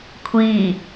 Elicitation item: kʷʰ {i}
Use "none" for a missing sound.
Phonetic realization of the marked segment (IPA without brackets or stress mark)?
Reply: i